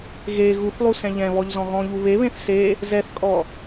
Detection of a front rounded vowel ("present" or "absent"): absent